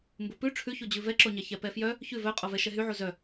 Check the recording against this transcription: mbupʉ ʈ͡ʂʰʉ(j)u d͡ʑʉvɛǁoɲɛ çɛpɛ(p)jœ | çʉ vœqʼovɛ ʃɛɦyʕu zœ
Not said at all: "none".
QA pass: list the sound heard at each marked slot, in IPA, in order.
ç, f

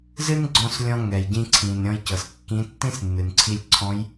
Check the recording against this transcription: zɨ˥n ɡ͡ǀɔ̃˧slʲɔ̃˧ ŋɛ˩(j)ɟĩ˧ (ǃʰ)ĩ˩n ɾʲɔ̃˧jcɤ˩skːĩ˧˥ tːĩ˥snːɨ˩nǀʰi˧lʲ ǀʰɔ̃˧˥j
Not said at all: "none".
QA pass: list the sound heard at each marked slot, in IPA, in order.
j, ǀʰ

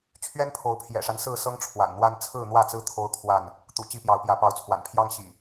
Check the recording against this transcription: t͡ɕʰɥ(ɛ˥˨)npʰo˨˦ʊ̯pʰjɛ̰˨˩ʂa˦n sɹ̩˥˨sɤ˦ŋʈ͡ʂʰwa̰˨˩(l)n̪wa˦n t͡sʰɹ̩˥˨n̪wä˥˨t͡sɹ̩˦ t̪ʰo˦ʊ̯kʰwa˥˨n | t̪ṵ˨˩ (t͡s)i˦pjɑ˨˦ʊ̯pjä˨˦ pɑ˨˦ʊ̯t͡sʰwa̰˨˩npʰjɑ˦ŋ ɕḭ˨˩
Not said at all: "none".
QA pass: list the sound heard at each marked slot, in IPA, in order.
ɛ˦, n, t͡ɕ

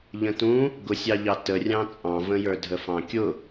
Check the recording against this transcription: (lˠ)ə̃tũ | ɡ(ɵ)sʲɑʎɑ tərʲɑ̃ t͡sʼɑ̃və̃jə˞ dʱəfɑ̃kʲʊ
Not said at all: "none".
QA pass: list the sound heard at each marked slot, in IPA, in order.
ʎ, ʊ

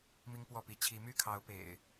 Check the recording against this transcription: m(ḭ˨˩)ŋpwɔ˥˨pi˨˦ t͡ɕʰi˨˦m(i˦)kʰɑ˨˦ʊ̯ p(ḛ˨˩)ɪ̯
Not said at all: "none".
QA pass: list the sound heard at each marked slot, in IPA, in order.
i˦, y˦, ḛ˨˩

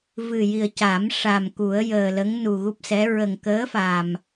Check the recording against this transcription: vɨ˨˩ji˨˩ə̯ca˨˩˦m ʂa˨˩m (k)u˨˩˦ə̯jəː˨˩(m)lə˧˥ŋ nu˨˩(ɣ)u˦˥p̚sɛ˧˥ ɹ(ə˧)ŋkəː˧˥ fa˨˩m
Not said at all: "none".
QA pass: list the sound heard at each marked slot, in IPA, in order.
k, none, ɣ, ə˨˩

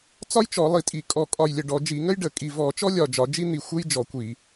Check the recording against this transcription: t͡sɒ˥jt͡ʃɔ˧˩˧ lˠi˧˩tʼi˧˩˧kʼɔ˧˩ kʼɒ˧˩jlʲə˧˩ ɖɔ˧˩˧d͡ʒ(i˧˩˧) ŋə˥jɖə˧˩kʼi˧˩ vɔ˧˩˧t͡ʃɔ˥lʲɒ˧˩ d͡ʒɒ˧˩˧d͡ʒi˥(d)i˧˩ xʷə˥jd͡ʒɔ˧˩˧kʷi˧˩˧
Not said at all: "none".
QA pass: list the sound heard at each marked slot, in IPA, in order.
i˧˩˧, n̪

